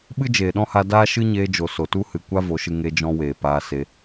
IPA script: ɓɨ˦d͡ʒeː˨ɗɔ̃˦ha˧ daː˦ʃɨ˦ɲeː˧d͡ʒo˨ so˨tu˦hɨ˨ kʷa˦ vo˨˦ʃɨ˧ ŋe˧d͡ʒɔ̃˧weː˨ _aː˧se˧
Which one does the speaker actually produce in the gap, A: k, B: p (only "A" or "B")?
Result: B